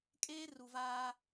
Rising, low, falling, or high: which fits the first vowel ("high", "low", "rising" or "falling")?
high